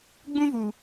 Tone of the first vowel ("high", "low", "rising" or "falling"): high